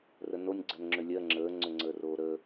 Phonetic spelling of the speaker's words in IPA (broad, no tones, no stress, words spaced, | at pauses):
rənonʲ ɡ͡ǀɜnŋ͡ǁʏlʲɜ ŋ͡ǁəːŋ͡ǀʏ ŋ͡ǀəːroːɾəː